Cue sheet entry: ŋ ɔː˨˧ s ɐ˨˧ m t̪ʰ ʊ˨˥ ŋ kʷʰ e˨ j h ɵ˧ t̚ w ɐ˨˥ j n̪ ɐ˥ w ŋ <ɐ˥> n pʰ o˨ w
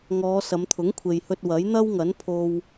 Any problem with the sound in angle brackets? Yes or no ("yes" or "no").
yes